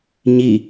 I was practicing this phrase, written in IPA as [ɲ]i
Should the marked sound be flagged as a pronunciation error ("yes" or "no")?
no